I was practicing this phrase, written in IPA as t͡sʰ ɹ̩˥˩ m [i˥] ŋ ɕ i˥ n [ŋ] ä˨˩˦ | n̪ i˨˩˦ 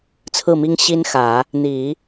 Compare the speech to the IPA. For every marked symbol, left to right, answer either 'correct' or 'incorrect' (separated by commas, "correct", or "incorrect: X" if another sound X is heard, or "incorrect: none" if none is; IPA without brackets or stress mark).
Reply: correct, incorrect: x